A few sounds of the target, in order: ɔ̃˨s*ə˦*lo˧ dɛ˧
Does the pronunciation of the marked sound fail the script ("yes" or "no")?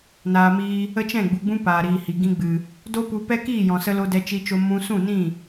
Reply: yes